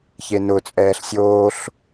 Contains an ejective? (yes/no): yes